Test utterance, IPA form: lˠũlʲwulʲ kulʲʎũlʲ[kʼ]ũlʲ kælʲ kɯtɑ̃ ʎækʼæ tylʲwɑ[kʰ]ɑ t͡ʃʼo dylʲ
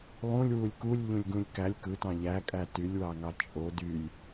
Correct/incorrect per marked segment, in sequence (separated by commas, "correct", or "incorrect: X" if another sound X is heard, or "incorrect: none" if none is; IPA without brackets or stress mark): incorrect: ɡ, incorrect: ŋ